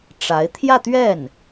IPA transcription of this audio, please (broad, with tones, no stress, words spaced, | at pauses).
ʈ͡ʂa˧˥ɪ̯ t̪ʰjä˥˧t̪ɥɛ˥˩n